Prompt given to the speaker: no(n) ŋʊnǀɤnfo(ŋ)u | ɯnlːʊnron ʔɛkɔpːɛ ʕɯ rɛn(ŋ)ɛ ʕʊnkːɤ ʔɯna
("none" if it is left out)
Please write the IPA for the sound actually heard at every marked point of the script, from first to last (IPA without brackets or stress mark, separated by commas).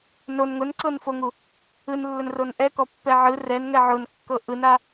n, ŋ, ŋ